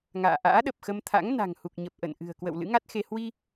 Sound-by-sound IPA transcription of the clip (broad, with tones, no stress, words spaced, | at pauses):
ŋa̰ː˧˨ ʔa̰ː˧˥ɗə˨˩p̚xə˧mt̪ʰa̰˧˥ŋ na̤˨˩ŋhu˨˩k̚ɲə˨˩p̚ ʔə̰˧˨n ʔɨ̤˨˩ə̯kwə̰˧˨w lɨ̰˧˥ŋa˦˥t̚xe˧ hwi˧